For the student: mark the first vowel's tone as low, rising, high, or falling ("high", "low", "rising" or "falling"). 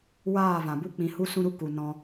falling